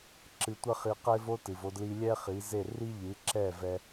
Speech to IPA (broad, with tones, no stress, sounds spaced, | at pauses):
ǁ ɨ˧ tʷ ɐ˥ χ i˧ q e˥ v o˥ t ɨ˩ v o˧ d l i˧ lʲ ɛ˥ χ i˩˥ z e˥˩ r i˥ ʎ ɨ˩˥ ǁ ɛ˥˩ v ɛ˧